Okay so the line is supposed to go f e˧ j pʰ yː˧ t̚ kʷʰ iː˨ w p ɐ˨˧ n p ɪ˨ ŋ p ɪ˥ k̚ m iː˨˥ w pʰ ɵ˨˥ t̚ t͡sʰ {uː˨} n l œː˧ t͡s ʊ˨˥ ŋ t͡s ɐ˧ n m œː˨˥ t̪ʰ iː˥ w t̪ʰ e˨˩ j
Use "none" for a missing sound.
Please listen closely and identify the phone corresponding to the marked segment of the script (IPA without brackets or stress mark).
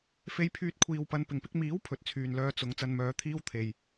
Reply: yː˨